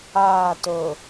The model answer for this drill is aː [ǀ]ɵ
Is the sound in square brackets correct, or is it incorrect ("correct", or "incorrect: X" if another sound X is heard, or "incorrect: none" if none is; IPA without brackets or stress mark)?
incorrect: t